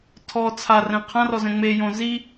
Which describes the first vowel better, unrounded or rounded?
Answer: rounded